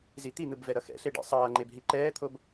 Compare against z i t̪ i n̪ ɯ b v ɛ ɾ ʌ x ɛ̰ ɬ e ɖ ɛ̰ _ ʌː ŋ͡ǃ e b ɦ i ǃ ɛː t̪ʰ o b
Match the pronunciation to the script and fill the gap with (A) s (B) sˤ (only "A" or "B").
B